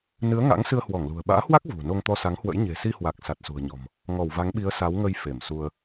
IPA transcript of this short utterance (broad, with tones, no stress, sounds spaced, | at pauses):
n ɨ˨˦ ə̯ ŋ a̰˧˥ ŋ s ɨ˧ ə̯ h w ɔ˧˩ ŋ l ṳ˨˩ ə̯ ɓ a̰ː˧˥ h w a˦˥ k̚ v ṳ˨˩ n o˧ ŋ t̪ ɔ˧ s a˨˦ ŋ h w ə̰˧˥ j ɲ e̤˨˩ s i˧ h w a˨˩ k̚ s a˨˩ t̚ s ṳ˨˩ ə̯ ɲ ɔ̤˨˩ m | ŋ ɔ˧˩ w v a˨˦ ŋ ɓ i˨˦ ə̯ s a˨˦ w ŋ ə˧ j f e˧˩ m s u˧ ə̯